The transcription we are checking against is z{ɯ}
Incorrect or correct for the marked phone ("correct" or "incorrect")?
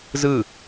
correct